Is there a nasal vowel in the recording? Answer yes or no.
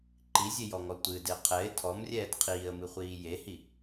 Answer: no